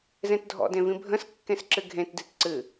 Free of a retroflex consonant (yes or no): yes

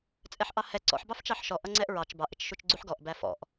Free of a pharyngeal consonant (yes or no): no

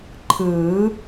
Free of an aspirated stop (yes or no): no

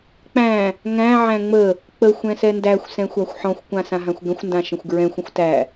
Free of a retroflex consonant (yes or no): yes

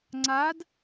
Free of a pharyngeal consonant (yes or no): yes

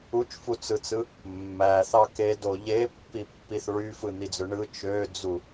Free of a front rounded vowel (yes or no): no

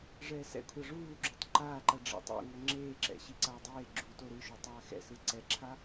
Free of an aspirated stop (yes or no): no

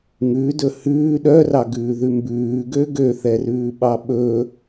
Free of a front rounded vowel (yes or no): no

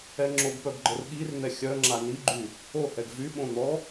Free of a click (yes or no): no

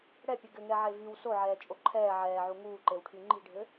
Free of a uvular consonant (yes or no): yes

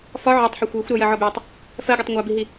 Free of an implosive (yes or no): yes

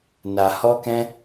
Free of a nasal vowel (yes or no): no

